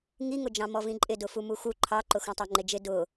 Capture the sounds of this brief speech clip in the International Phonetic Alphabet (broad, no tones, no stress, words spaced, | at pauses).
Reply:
ŋiŋʊd͡ʒɑ̃ mɔvĩǃʼɪ dʊfumuxu ǃʰɑǃʊ xũtˤɑŋ͡ǃɪd͡ʒɪ dʊ